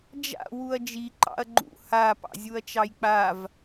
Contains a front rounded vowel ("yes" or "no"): no